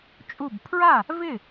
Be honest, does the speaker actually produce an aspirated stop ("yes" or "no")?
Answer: yes